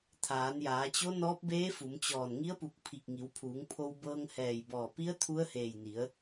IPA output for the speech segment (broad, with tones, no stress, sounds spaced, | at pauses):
t̪ʰ aː˩˧ n j aː˩˧ t͡ɕ o˧˥ n ɔː˧˥ p̚ b eː˧˥ f u˩˧ m t͡ɕ ɔː˧˩ n ŋ i˧˥ ə̯ p u˧˩ k̚ pʰ i˧˩ k̚ ŋ i˩˧ w pʰ uː˩˧ ŋ pʰ o˧ w b ɤː˧ ŋ h ɛː˧˩ j b ɔː˧˩ p i˧˥ ə̯ t̪ʰ u˧˥ ə̯ h eː˧˩ j n i˩˧ ə̯